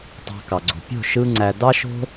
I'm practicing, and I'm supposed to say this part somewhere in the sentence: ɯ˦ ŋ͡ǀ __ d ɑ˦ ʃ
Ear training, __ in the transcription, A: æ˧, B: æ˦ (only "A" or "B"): A